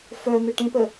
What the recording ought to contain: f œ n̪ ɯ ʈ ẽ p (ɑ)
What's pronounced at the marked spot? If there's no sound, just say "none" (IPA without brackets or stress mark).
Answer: ə